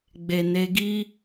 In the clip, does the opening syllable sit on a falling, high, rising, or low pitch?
low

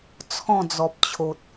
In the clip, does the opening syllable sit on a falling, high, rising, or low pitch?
falling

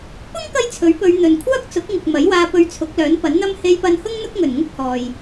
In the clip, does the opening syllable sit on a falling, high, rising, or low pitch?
high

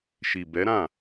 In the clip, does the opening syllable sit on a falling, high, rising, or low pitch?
low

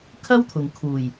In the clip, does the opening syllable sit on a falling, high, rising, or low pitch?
high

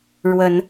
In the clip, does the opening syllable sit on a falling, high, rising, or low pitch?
rising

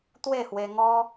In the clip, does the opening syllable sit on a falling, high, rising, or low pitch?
falling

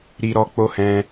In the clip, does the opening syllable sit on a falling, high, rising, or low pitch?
high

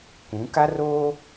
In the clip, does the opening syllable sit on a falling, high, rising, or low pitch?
rising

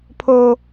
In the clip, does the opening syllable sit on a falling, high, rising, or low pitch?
high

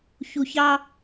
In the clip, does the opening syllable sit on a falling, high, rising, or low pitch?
low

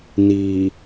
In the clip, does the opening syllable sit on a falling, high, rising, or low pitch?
low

